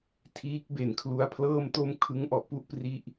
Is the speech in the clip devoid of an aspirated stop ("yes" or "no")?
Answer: no